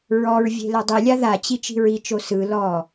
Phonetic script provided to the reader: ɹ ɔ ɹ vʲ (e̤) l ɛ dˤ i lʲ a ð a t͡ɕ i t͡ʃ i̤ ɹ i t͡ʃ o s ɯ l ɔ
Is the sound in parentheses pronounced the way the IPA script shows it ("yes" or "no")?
yes